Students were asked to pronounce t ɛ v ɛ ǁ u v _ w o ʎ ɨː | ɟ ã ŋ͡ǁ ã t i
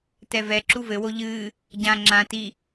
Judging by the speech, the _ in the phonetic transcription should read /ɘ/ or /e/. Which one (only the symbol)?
ɘ